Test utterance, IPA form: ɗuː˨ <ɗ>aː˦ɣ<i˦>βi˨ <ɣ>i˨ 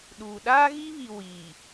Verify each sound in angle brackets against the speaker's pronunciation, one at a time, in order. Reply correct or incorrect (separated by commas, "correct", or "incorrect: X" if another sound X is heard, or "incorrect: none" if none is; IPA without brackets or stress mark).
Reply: correct, correct, incorrect: w